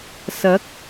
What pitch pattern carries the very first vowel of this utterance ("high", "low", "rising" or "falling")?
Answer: rising